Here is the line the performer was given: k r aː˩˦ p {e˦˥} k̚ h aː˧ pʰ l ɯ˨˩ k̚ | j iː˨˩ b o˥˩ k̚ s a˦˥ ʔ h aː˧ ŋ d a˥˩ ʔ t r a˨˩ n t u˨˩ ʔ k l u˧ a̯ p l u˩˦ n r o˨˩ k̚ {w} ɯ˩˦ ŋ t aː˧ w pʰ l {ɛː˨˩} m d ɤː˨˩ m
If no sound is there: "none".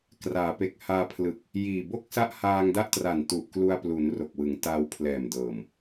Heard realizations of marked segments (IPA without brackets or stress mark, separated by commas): e˨˩, w, ɛː˨˩